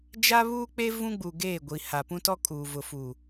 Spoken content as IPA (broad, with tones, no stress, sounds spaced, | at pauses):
d͡ʒ a˦ β uː˦ k͡p e˦ v ũ˦ ɡ͡b u˨ ɡ eː˦˨ ɡʷ i˨ h a˨ p ũ˦ t ɔ˦ kʼ uː˨ v ʊ˨ f u˨